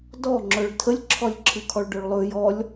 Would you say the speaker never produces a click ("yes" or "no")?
no